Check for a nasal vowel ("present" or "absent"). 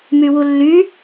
absent